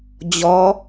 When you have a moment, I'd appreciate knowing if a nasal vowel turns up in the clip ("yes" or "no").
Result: no